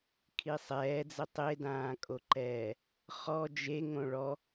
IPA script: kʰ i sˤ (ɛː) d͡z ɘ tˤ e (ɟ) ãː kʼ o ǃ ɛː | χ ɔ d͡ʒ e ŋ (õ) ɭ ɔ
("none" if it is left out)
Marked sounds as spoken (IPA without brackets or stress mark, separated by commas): ɛː, d, õ